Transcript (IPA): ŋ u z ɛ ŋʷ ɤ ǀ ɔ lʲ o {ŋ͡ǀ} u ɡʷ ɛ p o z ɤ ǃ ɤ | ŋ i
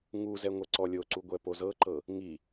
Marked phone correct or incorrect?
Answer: incorrect